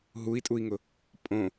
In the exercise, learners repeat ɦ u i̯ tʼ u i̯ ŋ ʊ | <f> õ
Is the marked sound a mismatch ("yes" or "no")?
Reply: yes